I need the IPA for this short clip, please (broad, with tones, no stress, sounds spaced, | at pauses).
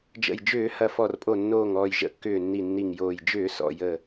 d͡ʒ ə̰˨˩ j d͡ʒ ʏː˧˩˧ h ɐ˨˩ f ɔ˨˩ r pʼ o˨˩ nː oː˨˩ ŋ ɔː˨˩ j ʒ ə̰˧˩˧ kː ʏː˨˩ nː i˨˩ nː i˨˩ ŋ j oː˨˩ j d͡ʒ ʏː˧˩˧ s ɔ̰˨˩ j əː˨˩